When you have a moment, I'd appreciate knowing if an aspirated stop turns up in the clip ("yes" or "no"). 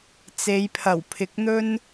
yes